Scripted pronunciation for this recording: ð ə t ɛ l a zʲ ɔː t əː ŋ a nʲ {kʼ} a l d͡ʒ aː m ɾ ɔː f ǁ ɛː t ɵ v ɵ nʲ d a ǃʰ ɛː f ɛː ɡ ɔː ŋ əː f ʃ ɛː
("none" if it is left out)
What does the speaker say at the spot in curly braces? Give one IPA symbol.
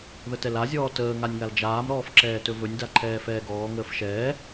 ŋ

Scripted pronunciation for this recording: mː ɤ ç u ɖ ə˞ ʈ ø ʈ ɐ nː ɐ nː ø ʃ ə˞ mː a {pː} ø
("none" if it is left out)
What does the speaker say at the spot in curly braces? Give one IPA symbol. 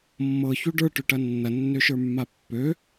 pː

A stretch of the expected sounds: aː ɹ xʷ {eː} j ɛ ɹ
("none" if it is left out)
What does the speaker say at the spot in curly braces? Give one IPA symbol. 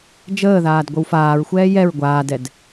ɛː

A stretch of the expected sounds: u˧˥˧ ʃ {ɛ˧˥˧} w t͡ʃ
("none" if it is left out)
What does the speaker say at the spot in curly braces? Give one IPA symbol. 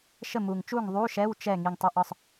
ɛ˧˥˧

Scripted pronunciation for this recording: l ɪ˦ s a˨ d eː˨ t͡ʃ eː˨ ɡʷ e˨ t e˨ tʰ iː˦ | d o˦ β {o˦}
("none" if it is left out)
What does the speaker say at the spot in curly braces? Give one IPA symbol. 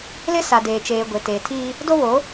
o˨˦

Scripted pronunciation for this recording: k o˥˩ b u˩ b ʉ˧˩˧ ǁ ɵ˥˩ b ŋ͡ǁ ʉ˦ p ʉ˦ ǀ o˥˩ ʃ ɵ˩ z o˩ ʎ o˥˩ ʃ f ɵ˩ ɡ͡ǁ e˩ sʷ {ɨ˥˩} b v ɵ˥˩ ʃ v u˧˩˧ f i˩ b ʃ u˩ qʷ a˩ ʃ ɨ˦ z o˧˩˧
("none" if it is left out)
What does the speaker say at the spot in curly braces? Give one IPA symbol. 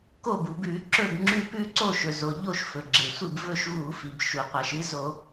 ɨ˥˩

